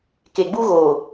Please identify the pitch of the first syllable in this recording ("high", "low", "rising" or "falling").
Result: low